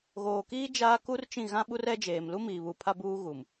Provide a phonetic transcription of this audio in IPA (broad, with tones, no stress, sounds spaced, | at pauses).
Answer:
ɣ oː˨ k iː˦ d͡ʒ aː˦ k u˦ r t͡ʃ ĩ˦˨ ɣ ã˦ ɓ u˦ r ɛ˦ d͡ʒ eː˨ m l u˦ m iː˨ β u˨ pʰ a˦ b uː˦ ɣ u˨ m